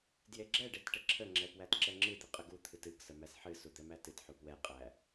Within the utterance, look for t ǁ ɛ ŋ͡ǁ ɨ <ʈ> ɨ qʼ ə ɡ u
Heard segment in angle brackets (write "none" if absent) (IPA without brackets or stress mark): d̪